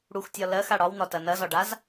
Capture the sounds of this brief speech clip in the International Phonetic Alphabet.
ɽ u x tʲ ɒ l ɜ x a ɽ ɒ w n̪ ɒ t ɐ n ɐ z ɒ ɖ a z

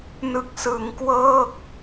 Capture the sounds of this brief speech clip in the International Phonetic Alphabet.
n ɯ˨˩ k̚ s ɯ˩˦ ŋ k w ɤː˥˩ k̚

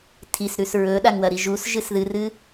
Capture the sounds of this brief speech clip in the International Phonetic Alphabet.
tʰ i s ɾ ʉ s ɹ ɵ ɗ a ŋ w ɐ ɾ i ʒ u s ʒ ɨ s ð ɨ r ɨ

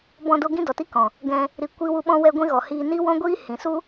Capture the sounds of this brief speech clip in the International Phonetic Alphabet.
b ɔ̃˧ d o˧ ɡ ĩ˦ d ɔ˨ t i˦ k ɔ̃˨ | ɡ ɛ̃˧ | ɾ i˨ kʷ i˧ w u˧ ɓ ɔ̃˦ w ɛ˦ ɡʷ ĩ˦ ɣ ɔ˨ h iː˧ n i˦ w ɔ̃˦ ɡʷ iː˦ h ĩ˨ s u˦

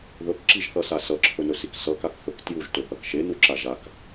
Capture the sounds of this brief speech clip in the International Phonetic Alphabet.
ð ɵ k ǁ i ʒ θ ʌ s a s ʌ ǁʰ ɵ n ɵ s i k s ʌ k a k θ ɵ k t j u ʒ t ɵ θ ʌ k ʃ e n u ǁ a ʒ a k

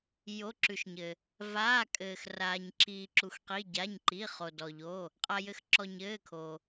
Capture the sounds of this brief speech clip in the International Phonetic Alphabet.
j o˩˧˩ ǁ ʉ˩ ʃ ɲ ɘ˩ | v aː˩˧˩ kʼ ɘː˩ x r aː˩ ɲ ǁ iː˩ ǁ u˩ x q i˩˧˩ ɟ a˩˧˩ ɲ ǃ i˩˧˩ χ o˩ d ɔ˩ ʎ o˩˧˩ | qʼ a˩ j ɘ˩ x ǁ ɔ˩ ɲ ɘː˩˧˩ kʰ o˩

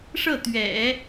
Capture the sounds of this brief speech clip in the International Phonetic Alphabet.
ʂ ɤ˥˩ t̪ ɥ ɛ̰˨˩˦

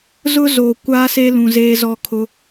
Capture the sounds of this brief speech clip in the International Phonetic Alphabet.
z ʊ˦ z o˨ kʷ aː˦ s e˦ l ũ˨ z eː˦ z ɔ˦ kʰ ʊ˦

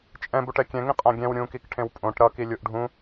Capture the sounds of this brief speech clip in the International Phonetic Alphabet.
t͡ʃʼ ɛ̃ b u ʈ ɛ kʲ ɛ̃ ŋ ĩ qʼ ã ɡʲ ɛ̃ w ɾʲ ũ k i k ʈʰ ẽ w pʼ õ ʈ ɾ ʌ k i lʲ u ʔ ɖʱ ũ

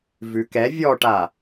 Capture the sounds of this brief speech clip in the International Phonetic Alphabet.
v ʉ k ɛ vʲ ɔ ʈ a

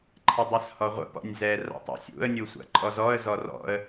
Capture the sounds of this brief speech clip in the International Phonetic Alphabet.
ǃʰ ə dˤ ʉ s h ɔ ʁʷ ə̰ p ɔ̰ nʲ z ɛ r a̰ tˤ a̰ sʲ ṵ ə̯ nʲ u sʷ a̰ ǃʼ ɔ z ɔ ə̯ z ɔ r ɔ̰ ə̯

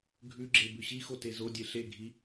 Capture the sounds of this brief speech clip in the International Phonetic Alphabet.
ɡʱ ʉ ɡ͡ǁ e b ʉ ɕ i x o t e z o dʲ e ɬ e ɡʱ i

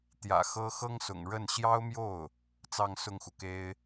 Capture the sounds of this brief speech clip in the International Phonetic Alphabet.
t̪ j ä̰˨˩ x ɤ˥ x ɤ˥ ŋ s ʊ̰˨˩ ŋ ɻ ə˥˩ n ɕ j ɑ˥ ʊ̯ m j o˥˩ ʊ̯ | t͡s ɑ˥˧ ŋ s ʊ˥˩ ŋ x u˩ k e˥ ɪ̯

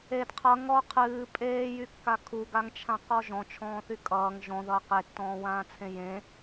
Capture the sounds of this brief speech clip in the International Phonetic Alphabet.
e d qʰ ʌ ŋ ɔ qʰ ɨː pʼ eː j y kː a kʰ u ɡ a ŋ t͡ʃʰ ã q ɔ ʒ ɔ̃ t͡ʃʰ ɔ̃ː θ y kʼ ʌː ŋ ʒ ɔ̃ ð ʌː q e tː ɔ̃ː w ãː t͡sʰ ẽ j ẽ

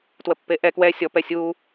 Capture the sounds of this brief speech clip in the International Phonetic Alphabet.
t w ə pː e ʔ ɛ k w ɛ sʲ ɔ p ɛ sʲ u

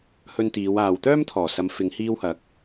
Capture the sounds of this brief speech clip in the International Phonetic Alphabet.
h ɵ˧ n t̪ iː˨˧ w aː˨ w t̪ œː˥ m t̪ʰ ɔː˨˩ s ɐ˨˧ m f ɪ˨˧ ŋ h iː˧ w h ɐ˨˥ k̚

